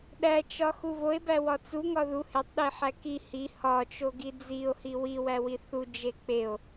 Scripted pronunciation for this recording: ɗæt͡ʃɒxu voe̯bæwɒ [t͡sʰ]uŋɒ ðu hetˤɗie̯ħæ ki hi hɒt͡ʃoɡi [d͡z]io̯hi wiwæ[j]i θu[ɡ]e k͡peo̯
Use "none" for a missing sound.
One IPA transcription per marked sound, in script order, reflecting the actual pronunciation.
t͡s, d͡z, w, d͡ʒ

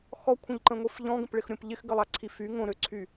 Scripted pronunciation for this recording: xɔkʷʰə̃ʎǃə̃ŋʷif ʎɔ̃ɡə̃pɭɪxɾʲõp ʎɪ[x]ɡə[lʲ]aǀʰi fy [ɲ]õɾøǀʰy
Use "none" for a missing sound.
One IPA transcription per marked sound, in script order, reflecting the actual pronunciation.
x, lˠ, ŋ

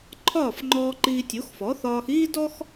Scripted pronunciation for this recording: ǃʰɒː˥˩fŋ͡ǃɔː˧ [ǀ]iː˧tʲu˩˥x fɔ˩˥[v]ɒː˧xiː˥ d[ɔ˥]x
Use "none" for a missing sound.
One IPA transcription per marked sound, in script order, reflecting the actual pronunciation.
ǃ, θ, ɔ˥

